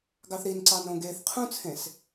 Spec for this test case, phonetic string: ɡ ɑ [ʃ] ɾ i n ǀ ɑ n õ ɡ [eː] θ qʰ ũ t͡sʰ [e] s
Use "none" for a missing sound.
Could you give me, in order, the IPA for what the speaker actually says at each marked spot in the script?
θ, eː, ẽ

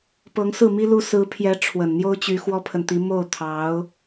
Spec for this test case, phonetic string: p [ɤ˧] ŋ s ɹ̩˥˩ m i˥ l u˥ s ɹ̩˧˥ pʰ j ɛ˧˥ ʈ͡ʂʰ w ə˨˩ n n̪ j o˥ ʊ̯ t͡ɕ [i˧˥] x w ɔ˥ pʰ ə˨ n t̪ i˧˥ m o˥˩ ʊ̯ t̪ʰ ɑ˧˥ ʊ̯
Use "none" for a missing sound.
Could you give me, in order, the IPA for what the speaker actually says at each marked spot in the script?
ɤ˧˥, y˧˥

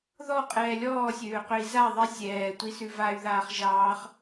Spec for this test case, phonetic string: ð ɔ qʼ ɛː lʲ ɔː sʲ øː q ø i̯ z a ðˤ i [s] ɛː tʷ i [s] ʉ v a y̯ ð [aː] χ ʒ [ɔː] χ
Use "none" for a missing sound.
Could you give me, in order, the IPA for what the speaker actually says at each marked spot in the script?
sʲ, s, aː, ɑː

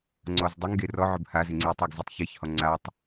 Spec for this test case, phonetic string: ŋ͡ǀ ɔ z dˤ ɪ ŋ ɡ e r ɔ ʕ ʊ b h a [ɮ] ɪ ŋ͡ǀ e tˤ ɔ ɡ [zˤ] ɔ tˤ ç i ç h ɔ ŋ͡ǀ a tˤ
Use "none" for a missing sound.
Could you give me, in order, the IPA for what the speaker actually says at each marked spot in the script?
z, z

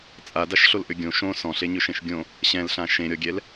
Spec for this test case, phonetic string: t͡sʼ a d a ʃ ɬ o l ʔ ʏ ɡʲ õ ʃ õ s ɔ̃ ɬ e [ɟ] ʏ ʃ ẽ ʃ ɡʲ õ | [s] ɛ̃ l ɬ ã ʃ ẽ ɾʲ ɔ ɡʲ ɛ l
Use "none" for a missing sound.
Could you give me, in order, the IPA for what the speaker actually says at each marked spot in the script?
ɲ, ɕ

